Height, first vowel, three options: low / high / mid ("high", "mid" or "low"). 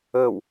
mid